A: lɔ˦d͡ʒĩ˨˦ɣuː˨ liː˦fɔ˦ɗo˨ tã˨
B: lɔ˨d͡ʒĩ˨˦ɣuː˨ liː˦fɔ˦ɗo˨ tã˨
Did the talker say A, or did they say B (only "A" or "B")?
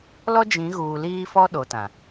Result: A